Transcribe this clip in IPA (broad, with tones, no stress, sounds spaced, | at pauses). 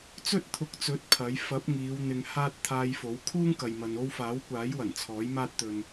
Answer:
t͡s ɵ˥ t̚ t̪ʰ ʊ˨˥ k̚ t͡s ɵ˨˥ t̚ pʰ ɐ˨˥ j f ɐ˨˥ p̚ ŋ iː˨˧ w n̪ ɪ˧ ŋ h aː˥ t̚ t̪ʰ aː˧ j f o˨˥ w kʰ uː˥ ŋ k ɐ˨ j m ɐ˨ n o˥ w f aː˨˥ w kʷ aː˨˥ j w ɐ˨˩ n t͡sʰ ɔː˨˥ j m aː˥ t̚ t̪ ɵ˧ n